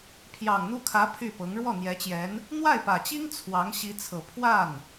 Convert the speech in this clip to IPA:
pʰjɑ˨˩ŋn̪u˥˩kʰä˧˥ pʰy˥˩pɤ˧˥ŋ ɻwɔ˥˩n̪jɛ˧˥t͡ɕjɛ˧˥n | n̪wa˥˩ɪ̯pä˨˩t͡ɕi˥ŋ t͡sʰwɑ˧˥ŋ ɕi˧˥t͡sʰɤ˨˩ pʰwa˥˩n

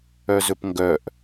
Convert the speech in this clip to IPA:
œzɵpŋɡœʔ

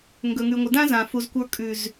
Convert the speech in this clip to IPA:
ŋɡɵ˨ŋʉ˨ŋʷɪ˨ dã˦zã˨fu˨zkʷə˞˧ kʼʉ˨z

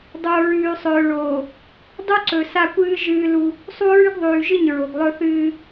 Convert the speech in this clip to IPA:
dˤo˨ɹʉː˨ sˤɵː˨ɭoː˨ | dˤu˦ǀɵ˨ sa˦kʷɨː˦ ʒɨː˦lu˦ | sˤu˦ɹʉ˦ɡðˤʉː˨ʒɨ˦˨ɲ ɹo˨ɡlˠɵ˦θɨː˦

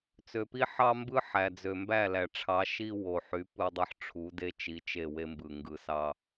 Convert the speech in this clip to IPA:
t͡sø˨pi˦ħɑ˦mbɯ˦ ħæ˨d͡zø˨mbæ˦˨ læ˨ʈ͡ʂʰɑ˨˦ʃi˦ wo˨ħy˨˦ pɯ˦dˤɯ˦ħ ʈ͡ʂʰu˨˦de˦ t͡ʃi˨˦t͡ʃe˦˨ we˦mbɯ˨ ŋɡɯ˨sɑ˦

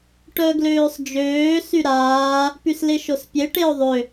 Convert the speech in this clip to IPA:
ʈœɡløːsˤd͡ʒøː syɾaː | pysleʃospʲe ʈeo̯ðˤø

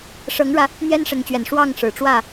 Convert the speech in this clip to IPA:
ʂɤ˨˦ŋɻä˨˦ | n̪jɛ˦nʂə˨˦nt͡ɕɥɛ˨˩n ʂwɑ˥˨ŋʂɻ̩˨˩ʈ͡ʂwä˥˨

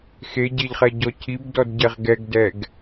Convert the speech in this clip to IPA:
xeɟeʎχɛɟɔ cʰibdɔdɟɛʁ ɡɛɡdɛɡ

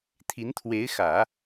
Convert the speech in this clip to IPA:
t̪ʰi˧˥nt̪ʰwe˧˥ɪ̯ xä˨˩˦

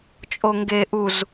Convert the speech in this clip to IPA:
t͡ʃʼoŋɡe ʔuz

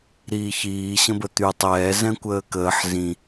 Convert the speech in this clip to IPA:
ɾiːçiː ɕə̃bət̪y tˤɛː zɛ̃kʷəːkəːħ zĩ

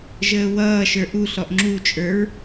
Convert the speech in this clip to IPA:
ʒəːwʌːʃə˞ ʔuɬɔʔ ŋ͡ǁut͡ʃʼə˞ɹ

